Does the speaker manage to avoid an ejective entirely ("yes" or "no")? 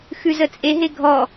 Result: no